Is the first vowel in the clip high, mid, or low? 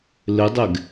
high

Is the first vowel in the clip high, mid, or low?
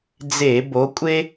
mid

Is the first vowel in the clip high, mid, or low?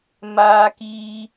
low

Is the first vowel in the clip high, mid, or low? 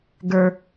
mid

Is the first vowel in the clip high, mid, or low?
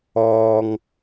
mid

